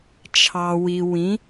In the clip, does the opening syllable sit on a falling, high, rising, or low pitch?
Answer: low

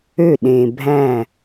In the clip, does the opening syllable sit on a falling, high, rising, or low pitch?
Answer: falling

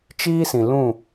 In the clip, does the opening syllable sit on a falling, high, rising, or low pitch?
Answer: high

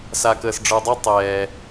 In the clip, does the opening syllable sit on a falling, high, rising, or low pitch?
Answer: low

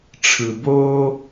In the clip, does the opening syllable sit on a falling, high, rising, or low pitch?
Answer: low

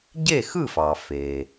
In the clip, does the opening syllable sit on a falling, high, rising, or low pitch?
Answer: falling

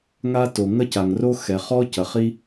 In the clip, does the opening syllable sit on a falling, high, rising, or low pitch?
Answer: high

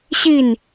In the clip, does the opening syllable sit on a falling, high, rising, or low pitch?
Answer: falling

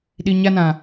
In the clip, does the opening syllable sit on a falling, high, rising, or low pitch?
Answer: low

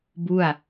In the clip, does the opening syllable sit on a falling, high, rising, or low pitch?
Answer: falling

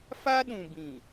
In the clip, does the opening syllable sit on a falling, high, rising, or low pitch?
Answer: high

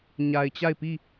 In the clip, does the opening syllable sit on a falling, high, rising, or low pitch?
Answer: low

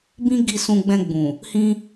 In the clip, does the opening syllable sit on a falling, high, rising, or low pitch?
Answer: high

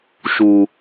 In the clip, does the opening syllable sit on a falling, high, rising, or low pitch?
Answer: high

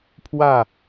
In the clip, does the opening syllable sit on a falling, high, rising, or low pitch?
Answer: falling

